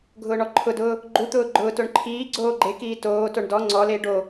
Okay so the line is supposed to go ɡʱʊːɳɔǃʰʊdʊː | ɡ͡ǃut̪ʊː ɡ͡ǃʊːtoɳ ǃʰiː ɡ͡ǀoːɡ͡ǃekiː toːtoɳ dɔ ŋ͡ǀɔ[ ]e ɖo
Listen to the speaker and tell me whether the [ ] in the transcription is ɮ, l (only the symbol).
l